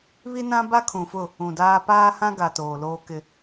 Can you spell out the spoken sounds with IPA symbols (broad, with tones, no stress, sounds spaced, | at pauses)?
β i˦ n ã˦ b a˦ kʰ ũ˨ f ʊ˦˨ | ũ˨ d aː˦ p aː˦ h ã˦ ɡ a˨ t oː˨ l oː˦ k ɪ˦